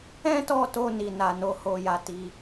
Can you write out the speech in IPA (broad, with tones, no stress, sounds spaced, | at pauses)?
ɛ̃˦ t ɔ˦˨ t o˧ n i˨ n a˨ n o˨˦ h o˧ j a˧ t i˧